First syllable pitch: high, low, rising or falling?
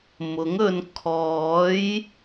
rising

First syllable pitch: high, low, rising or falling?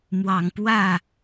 low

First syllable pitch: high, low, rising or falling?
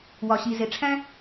low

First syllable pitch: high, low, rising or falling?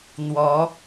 rising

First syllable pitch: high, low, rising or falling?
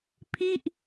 falling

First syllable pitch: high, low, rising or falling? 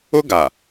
high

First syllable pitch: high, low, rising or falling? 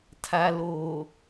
low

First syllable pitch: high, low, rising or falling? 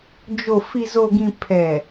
low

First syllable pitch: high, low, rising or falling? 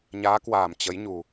rising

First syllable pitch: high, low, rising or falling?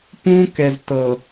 high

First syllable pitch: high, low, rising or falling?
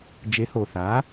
rising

